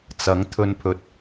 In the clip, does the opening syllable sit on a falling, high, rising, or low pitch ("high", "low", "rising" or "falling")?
rising